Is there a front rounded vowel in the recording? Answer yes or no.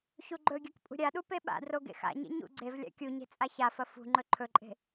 no